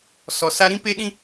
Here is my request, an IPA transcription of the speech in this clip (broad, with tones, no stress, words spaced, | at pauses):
sɔ˨ sa˧ɾĩ˦pe˦ɗĩ˦